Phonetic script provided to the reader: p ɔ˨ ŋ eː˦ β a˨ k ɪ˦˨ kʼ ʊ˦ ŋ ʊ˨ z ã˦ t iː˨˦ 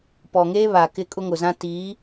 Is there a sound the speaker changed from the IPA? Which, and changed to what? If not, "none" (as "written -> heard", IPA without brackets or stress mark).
none